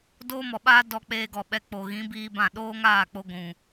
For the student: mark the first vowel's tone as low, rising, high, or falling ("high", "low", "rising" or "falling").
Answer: high